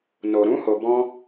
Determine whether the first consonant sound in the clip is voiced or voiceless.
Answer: voiced